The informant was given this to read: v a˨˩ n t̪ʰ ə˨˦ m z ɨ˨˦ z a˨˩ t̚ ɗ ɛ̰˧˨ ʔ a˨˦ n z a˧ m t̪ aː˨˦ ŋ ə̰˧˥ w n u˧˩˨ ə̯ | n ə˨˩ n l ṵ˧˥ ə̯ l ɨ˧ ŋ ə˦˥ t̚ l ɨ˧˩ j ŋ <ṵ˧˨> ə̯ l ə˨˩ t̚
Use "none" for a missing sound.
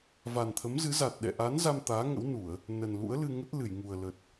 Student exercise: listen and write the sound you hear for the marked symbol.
u˨˩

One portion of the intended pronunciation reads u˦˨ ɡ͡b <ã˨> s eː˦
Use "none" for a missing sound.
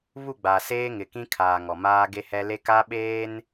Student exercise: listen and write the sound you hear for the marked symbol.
a˨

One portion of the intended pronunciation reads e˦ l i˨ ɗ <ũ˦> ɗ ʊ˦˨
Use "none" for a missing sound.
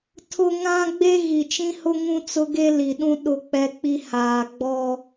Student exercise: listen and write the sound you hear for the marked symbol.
ũ˦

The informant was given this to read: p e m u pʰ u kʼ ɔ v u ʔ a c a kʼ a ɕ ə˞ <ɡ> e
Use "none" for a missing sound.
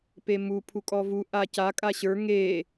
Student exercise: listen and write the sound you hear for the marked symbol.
ŋ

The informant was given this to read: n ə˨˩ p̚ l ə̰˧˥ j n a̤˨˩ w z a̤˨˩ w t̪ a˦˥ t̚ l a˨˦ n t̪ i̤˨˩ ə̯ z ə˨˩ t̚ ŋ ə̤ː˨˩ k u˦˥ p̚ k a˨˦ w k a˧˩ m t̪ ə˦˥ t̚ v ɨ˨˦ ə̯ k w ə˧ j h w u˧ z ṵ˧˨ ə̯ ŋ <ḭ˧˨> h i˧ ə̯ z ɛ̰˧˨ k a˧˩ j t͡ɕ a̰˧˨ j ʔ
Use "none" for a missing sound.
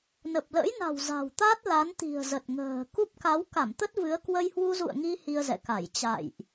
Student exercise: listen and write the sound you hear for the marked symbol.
i˧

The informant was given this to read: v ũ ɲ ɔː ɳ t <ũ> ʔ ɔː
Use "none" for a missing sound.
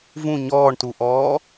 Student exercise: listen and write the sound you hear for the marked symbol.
u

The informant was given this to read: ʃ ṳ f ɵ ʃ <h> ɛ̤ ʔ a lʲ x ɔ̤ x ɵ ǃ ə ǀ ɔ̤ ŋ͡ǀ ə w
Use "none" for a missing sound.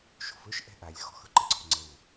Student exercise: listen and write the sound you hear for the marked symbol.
ʔ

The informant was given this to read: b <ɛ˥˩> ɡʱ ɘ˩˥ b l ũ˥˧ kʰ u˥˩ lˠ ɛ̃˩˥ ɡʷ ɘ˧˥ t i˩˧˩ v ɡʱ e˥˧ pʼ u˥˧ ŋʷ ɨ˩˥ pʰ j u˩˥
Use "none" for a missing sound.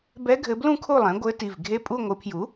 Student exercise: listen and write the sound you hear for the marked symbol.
ɛ˧˥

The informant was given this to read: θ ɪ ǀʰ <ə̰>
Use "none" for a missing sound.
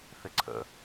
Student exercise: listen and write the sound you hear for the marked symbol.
ə̰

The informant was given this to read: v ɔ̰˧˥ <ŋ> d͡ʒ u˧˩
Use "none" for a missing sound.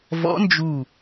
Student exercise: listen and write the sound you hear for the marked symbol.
n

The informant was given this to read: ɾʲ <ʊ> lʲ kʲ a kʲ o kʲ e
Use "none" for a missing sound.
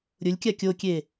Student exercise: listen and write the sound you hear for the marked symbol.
ʊ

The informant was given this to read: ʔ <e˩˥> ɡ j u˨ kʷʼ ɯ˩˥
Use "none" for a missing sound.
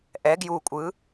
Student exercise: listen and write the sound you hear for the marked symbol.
ɛ˩˥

